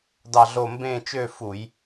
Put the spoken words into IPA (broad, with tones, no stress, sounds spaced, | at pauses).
d ɑ˥˧ ɮ o˥˧ m b ẽ˥˧ t͡ʃ ø˥˧ f u˧˩˧ j